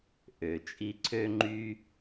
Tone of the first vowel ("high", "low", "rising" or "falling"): low